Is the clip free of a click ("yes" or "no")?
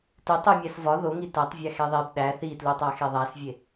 yes